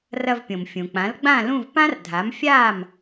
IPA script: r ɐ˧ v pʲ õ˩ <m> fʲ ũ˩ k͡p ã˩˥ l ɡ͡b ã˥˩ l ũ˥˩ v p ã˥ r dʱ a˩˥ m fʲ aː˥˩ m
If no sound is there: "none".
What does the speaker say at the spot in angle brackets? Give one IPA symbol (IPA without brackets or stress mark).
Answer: m